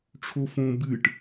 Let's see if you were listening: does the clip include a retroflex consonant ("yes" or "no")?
yes